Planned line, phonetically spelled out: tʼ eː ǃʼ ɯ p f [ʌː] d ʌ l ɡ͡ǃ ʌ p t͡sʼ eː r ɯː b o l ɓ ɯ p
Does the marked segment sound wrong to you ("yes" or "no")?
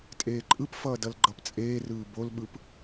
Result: no